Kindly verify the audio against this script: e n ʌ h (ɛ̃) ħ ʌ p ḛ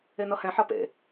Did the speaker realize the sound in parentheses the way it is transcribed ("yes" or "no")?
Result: yes